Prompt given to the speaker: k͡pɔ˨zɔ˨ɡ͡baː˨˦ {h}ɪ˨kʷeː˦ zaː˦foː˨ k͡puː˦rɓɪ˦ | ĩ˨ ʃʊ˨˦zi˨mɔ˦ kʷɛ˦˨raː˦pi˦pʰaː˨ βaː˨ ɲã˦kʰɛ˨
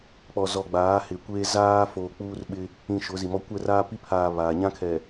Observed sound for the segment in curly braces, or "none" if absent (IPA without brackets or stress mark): h